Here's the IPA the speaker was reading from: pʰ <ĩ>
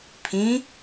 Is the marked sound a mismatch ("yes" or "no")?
no